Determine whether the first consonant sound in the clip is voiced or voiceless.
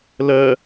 voiced